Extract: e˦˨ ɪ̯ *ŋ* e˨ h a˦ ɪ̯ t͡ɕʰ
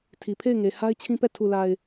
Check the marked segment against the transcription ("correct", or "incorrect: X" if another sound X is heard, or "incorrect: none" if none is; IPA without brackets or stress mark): correct